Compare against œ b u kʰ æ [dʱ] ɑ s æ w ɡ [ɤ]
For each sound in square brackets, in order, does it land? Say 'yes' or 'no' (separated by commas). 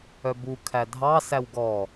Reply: yes, no